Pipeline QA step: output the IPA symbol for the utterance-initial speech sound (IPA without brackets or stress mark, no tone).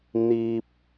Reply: n̪